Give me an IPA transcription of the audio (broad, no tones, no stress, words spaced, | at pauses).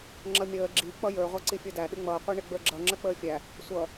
ŋ͡ǁʌmʲəː ɡ͡ǁi k͡pʌjə˞ ʁʷæǀifʲə˞dæ ɗɪŋ͡mʌː qʷiɳɪɡ͡bə˞ɡ͡ǁʌ ŋ͡ǁək͡pəːfʲæ | sʷʌ